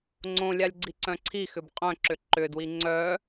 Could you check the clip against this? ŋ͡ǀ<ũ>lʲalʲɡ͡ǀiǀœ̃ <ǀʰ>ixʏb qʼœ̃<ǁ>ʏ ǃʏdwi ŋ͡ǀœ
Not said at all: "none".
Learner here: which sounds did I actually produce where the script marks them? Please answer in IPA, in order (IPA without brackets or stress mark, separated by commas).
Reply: õ, ǀʰ, ǁ